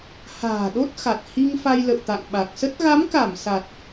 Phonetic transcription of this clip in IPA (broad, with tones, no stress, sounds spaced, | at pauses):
h a̤ː˨˩ ɗ o˦˥ t̚ x a˨˩ t̚ h i˧ ŋ f a˧ j l ə̰˧˨ w t̪ a̰˧˨ ŋ ɓ a˨˩ k̚ s ə˦˥ t̚ ɣ a˨˦ m k a˧˩ m s a˨˩ t̚